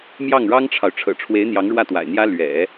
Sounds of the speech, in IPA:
m j ɑ˥˩ ŋ ɻ ɑ˥ ŋ ʈ͡ʂʰ ɑ˨ ʊ̯ ʈ͡ʂʰ ɤ̰˨˩ ʈ͡ʂʰ w e˧˥ ɪ̯ n̪ j ɑ˧˥ ŋ ɻ w ä˥˩ t̪ w a̰˨˩ ɪ̯ n̪ j ä˥ l ɥ ɛ̰˨˩˦

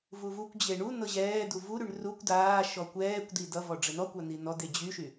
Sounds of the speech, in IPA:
v u v u kʷ d͡ʑ e ɳ u n ɤ ʑ ɛː d u v u ɾ y ɳ r u kʷ d aː ʃ ɔ kʷ ɛː kʷ d i d ʌ v ɔ ɖ͡ʐ ɘ n ɔ kʷ a n̪ i n ɔ d e d͡ʑ y ʃ y

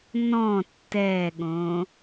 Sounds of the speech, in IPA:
n ɔ̃ tː ɛ ɠ õ

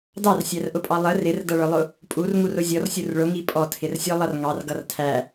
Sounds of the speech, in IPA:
d ɑ r sʲ æ r ʔ ʊ pʼ ɑ lˠ ə r ɪ r d ʌ ɭ ə˞ lˠ ʊ | pʼ u r ŋ u r ʊ zʲ ɔ r sʲ u r ɭ ʊ ŋ i pʼ ɔ tʰ ɪ r sʲ ɔ lˠ ʌ r ŋ ɑ r ɡ ʌ r tʰ æ

